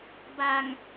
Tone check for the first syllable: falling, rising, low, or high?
low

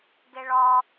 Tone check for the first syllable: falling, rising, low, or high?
low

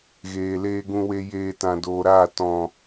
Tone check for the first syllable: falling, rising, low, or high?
low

